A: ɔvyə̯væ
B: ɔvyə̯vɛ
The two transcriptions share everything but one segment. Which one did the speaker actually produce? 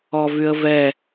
B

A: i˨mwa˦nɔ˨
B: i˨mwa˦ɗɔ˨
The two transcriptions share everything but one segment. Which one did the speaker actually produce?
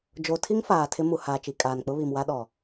B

